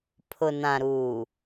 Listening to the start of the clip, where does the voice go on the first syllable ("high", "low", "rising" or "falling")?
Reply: low